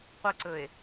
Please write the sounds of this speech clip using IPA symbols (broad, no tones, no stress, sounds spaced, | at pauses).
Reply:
qʷ ɘ ǀ ɵ e̯